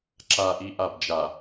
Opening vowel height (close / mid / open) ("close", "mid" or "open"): open